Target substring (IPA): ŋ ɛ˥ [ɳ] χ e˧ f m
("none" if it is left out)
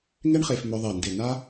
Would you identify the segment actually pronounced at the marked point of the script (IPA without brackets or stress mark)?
ɳ